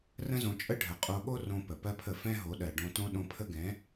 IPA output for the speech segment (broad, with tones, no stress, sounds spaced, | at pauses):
r ə̃˦ z õ˧ t͡ʃʼ ə˦ ɖʱ ə˨ qʼ o˧ ɠ o˦ r õ˧ p ə˨ p ɜ˦ pʰ ə˦˨ f ɛ̃˦ ɦ o˨˦ ɗ ɜ˨ ɖ õ˧ t õ˦ ɗ õ˧ pʰ ə˦ ɡ ɛ̃˨˦